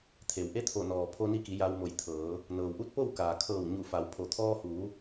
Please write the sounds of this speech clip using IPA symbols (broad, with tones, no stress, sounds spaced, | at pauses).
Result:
t̪ʰ e˩ w ʔ e˧˥ t̪ʰ o˧˩ n ɔː˩ pʰ o˧ n i˧ k i˩˧ j a˧ w m o˧˩ j t̪ʰ ɤː˩˧ | n ɤː˩ w ʔ u˧˥ t̚ p o˥˨ w k aː˩ kʰ ɤː˧˩ w ɲ u˧˩ f a˩˧ w pʰ o˩˧ t̪ʰ ɔː˧ h uː˩˧